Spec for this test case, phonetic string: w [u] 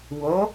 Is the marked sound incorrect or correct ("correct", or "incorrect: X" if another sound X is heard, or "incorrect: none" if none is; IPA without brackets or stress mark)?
incorrect: o